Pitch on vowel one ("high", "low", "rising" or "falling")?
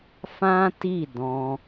high